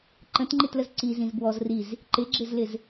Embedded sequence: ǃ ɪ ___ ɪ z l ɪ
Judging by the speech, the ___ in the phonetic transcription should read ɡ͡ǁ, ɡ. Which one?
ɡ͡ǁ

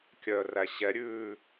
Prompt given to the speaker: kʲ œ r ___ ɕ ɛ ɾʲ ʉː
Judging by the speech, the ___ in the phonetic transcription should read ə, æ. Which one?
æ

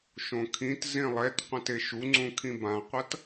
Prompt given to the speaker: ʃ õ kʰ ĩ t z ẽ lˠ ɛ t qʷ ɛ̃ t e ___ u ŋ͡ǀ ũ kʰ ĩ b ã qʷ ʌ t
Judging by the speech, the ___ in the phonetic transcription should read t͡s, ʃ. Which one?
ʃ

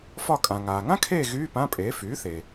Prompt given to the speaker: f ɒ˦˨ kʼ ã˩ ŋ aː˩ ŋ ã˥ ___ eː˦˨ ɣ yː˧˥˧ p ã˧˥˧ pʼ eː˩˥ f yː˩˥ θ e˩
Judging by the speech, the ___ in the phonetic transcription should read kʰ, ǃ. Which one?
kʰ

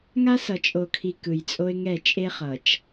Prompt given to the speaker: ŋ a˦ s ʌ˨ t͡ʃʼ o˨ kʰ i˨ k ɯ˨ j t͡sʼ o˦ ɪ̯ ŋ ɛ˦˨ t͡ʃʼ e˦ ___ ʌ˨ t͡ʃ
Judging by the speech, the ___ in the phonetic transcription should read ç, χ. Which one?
χ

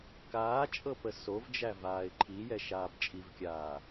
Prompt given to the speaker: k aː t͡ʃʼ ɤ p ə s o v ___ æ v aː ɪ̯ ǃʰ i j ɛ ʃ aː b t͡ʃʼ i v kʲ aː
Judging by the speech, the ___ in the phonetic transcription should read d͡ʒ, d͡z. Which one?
d͡ʒ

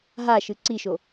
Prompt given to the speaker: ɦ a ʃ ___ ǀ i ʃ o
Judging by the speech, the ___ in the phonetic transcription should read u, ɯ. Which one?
ɯ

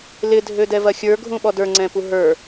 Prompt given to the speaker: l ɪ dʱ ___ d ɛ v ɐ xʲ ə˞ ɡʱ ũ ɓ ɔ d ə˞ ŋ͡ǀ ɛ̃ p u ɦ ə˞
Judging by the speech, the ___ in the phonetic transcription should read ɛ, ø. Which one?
ø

